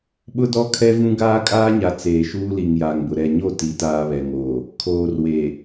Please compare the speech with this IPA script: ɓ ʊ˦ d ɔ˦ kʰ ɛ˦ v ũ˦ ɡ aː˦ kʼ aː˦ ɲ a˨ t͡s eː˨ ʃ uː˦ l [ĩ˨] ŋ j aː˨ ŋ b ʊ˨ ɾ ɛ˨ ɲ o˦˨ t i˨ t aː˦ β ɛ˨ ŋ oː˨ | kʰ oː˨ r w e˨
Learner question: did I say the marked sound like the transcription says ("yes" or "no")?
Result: no